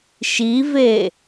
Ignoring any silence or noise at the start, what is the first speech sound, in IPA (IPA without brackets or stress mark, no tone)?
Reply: ʃ